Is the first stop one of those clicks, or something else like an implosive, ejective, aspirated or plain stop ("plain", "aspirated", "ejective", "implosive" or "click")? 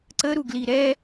click